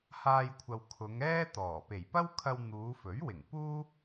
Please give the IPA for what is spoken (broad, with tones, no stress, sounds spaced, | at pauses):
h aː˧ j kʷʰ ɐ˨ w kʰ ʊ˨˧ ŋ ɛː˥ t̪ ɔː˨˩ p e˨˩ j p ɐ˥ w kʰ ɐ˧ w n̪ uː˨˧ f ɵ˨˥ ɥ w ɪ˨˩ ŋ p uː˥